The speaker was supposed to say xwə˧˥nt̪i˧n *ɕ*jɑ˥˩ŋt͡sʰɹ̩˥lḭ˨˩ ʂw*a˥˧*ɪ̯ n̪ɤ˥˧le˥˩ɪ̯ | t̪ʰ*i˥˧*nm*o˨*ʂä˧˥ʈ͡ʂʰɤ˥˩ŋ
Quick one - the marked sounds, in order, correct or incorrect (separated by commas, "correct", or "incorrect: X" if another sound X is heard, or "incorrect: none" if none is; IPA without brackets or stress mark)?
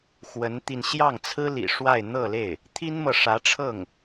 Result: correct, correct, incorrect: i˥, incorrect: ɤ˨